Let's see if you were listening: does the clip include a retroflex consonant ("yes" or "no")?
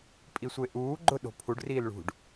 yes